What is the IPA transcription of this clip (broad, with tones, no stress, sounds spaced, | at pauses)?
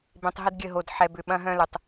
b ẽ˨ tˤ ɦ ə˦ d ɡʲ ə˦˨ ɦ o˨ d ħ ɛ˨ b ʏ˨ ɓ ɐ̃˦ ɦ œ̃˦ l ø˨ tˤ